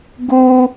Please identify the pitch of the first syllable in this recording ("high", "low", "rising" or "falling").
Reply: high